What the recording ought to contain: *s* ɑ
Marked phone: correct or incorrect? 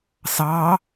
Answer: correct